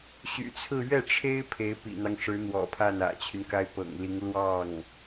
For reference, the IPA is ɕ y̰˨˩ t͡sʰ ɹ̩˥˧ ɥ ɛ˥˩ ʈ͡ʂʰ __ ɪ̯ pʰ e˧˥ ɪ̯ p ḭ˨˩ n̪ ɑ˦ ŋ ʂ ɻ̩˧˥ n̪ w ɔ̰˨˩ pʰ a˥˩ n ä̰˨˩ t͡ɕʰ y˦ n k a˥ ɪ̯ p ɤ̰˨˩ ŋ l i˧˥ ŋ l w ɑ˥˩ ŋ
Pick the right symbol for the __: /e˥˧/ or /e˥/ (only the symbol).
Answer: e˥